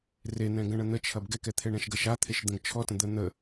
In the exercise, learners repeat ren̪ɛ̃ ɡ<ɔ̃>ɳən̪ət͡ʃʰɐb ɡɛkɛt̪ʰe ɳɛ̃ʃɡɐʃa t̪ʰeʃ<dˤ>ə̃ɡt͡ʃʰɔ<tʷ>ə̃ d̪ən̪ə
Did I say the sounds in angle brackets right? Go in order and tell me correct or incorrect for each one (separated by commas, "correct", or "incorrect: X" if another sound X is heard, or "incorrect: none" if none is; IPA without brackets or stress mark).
incorrect: ə̃, incorrect: d̪, incorrect: t